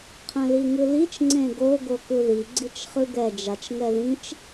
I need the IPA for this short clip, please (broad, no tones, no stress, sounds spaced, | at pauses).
qʰ ɛ̃ l i ŋ ɯ l i t͡ʃ ŋ͡ǀ ẽ ɡ o ɡ o k ɯ ð i ɡ͡ǀ i t͡ʃ χ ɯ ɡ ɛ d͡ʒ a t͡ʃ ŋ ɛ ð ĩ t͡ʃ